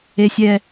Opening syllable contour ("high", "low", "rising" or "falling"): low